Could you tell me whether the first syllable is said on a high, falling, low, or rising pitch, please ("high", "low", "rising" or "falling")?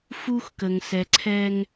high